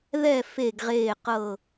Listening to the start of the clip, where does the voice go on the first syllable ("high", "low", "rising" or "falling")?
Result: falling